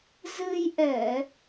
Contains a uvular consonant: no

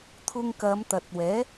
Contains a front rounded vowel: no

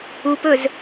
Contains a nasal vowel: no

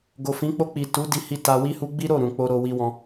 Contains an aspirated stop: no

